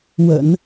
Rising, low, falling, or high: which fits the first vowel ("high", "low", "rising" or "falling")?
low